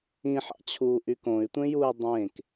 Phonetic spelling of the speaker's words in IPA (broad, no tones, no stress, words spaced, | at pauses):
ĩħɑ̰t͡ɕʰuː ʔykõy̯tʷẽjuːi̯ dˤẽːk